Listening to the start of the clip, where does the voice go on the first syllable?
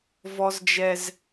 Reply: high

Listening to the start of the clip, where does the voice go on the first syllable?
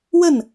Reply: falling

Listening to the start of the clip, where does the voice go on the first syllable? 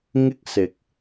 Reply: high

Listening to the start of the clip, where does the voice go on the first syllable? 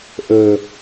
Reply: low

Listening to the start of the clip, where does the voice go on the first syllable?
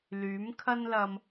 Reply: rising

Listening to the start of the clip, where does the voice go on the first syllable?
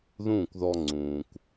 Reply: falling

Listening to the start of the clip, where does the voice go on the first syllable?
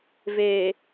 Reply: low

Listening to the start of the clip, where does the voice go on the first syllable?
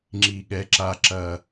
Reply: low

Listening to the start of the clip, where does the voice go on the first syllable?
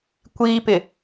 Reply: high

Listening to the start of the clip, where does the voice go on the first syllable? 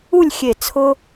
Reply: falling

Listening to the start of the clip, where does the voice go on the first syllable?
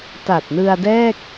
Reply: low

